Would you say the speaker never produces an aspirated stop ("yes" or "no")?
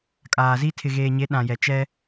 no